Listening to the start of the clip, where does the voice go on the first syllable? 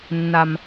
low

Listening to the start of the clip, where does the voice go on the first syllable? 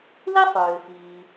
high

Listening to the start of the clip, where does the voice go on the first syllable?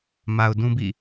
low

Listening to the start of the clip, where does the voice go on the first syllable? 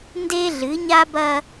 high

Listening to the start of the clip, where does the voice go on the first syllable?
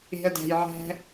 low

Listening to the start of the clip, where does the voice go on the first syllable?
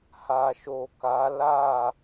low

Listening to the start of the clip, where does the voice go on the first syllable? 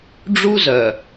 high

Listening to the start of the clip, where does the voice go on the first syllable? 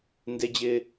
high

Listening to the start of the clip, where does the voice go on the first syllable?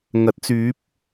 rising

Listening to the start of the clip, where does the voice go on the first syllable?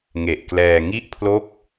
low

